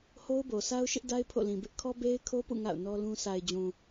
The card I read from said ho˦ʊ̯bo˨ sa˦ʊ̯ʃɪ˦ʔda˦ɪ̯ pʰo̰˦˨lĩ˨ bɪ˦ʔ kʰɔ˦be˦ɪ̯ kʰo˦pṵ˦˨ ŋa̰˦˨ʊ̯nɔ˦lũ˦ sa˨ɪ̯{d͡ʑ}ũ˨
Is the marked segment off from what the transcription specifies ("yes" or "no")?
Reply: no